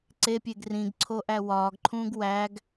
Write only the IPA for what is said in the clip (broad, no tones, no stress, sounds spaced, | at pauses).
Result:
ǀ e pʲ e ɡ r ĩ ɡ ǀʰ o ʔ æ w ɒː ɡ ǃʰ ũː ɡ w æ ɡ